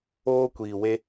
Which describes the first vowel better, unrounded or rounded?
rounded